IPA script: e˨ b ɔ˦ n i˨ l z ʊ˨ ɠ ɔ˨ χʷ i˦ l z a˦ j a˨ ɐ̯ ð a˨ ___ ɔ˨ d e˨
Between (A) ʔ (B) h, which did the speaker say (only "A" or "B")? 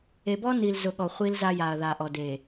A